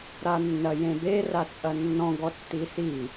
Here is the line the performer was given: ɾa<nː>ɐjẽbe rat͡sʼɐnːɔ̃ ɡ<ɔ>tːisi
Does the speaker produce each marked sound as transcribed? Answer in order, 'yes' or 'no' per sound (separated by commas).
yes, yes